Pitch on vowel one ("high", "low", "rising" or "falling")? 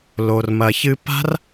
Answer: low